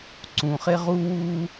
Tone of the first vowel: low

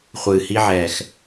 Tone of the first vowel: low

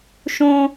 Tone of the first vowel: high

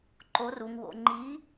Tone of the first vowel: rising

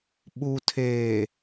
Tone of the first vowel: low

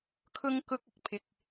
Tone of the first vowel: high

